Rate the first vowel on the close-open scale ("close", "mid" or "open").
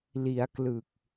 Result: close